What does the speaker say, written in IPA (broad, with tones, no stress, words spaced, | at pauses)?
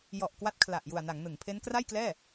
jɔ˨˩ʔ kwa˦˥t̚kʰla˨˩ʔ ju˨˩a̯na˩˦ŋnɯ˩˦ŋpʰe˦˥n kra˥˩jklɛː˥˩